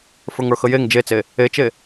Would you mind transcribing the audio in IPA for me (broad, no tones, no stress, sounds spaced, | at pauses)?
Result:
f ə˞ ŋ ə˞ x ə j e ŋ d͡ʒ e t͡s e | e t͡ʃ e